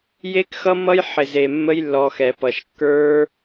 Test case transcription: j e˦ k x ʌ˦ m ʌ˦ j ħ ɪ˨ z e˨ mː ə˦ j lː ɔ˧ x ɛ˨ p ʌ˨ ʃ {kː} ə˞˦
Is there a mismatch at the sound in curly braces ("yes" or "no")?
no